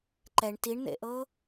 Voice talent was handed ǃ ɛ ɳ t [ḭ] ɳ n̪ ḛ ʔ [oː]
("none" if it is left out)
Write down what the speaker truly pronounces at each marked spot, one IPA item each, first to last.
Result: i, ɤː

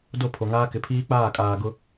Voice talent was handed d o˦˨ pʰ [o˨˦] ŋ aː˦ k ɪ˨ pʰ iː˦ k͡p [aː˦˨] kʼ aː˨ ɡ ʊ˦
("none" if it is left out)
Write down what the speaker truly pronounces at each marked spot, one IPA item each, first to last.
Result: o˨, aː˦˨

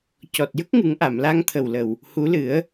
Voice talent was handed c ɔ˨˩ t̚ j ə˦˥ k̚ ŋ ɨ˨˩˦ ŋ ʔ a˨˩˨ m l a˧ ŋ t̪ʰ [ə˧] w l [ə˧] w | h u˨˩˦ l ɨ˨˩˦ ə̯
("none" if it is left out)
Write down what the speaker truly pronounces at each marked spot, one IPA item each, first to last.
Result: ə˨˩, ə˨˩

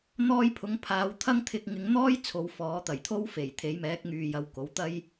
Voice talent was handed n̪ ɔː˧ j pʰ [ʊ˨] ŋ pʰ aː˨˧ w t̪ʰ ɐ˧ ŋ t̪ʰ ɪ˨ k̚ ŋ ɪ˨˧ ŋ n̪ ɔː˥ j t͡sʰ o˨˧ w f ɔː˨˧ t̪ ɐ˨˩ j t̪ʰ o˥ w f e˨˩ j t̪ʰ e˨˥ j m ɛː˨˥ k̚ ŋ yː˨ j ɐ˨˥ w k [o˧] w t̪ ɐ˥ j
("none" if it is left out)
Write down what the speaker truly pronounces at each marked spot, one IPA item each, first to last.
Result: ʊ˨˧, o˨˥

